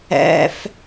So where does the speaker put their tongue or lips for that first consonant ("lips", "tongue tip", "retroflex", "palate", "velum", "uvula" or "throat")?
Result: lips